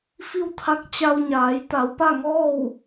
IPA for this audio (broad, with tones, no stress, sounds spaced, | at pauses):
f i˥˨ w t̪ʰ a˧˥ k̚ t͡ɕ a˧ w ɲ aː˩˧ j t̪ a˩˧ w p a˥˨ ŋ ɔː˥˨ w